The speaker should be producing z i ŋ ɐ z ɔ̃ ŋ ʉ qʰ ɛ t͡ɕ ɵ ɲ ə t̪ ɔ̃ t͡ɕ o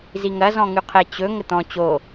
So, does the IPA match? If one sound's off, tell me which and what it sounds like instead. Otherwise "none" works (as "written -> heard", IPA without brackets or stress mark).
ɲ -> ŋ